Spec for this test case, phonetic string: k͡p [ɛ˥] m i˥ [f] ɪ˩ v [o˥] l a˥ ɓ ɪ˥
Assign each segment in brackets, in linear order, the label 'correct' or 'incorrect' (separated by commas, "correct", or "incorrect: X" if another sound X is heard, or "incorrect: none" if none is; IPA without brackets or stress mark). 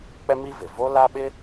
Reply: correct, incorrect: v, correct